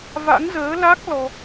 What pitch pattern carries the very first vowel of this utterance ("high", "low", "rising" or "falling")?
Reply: rising